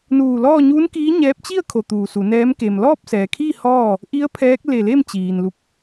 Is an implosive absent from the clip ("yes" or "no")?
yes